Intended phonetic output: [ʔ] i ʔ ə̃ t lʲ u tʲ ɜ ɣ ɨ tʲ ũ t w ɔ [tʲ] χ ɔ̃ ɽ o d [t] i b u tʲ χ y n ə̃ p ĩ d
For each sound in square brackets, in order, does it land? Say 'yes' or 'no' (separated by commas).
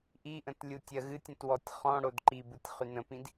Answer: yes, yes, no